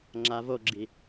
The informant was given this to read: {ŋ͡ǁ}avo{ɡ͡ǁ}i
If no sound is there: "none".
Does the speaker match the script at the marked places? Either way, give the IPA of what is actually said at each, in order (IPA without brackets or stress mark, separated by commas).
ŋ͡ǁ, ɡ͡ǁ